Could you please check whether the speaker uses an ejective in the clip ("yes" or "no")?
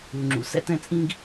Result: yes